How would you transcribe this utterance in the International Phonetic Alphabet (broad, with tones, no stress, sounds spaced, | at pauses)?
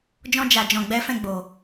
d͡ʒ ɔ̃˧ d͡ʒ a˨ d͡ʒ ɔ̃˨ ɡ͡b ɛ˨˦ f ɛ̃˦˨ ɡ͡b o˨